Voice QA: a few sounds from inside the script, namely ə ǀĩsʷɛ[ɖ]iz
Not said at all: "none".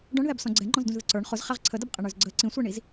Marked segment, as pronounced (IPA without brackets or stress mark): ɳ